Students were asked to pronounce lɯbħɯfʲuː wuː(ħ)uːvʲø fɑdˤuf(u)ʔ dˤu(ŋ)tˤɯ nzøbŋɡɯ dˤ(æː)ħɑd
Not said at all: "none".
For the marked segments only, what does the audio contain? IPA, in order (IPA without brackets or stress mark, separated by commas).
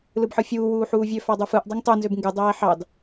ħ, ɯ, ŋ, æː